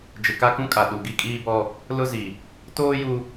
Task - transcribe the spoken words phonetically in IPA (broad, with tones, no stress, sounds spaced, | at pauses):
d͡ʒ ɪ˨ k a˦ k ũ˦ kʼ a˨ ɗ u˨ ɡ i˦ kʼ iː˦ b ɔ˦ | l ʊ˦ z i˨ | t oː˦ j u˦